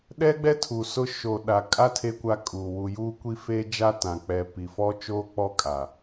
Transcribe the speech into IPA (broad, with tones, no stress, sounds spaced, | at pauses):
ɗ ɛ˦ ɡ͡b ɛ˦ tʰ u˨ s ʊ˦ ʃ o˨ ɗ a˨ kʼ a˦ tʰ e˦ kʷ a˦ kʼ uː˨ w u˨ j uː˦ kʷ i˦ f eː˦ d͡ʒ a˦ t ã˨ k͡p ɛ˨ p i˨ f ɔ˦ t͡ʃ oː˦ k͡p ɔ˦˨ kʼ a˨